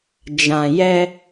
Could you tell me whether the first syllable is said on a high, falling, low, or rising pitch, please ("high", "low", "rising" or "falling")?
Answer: low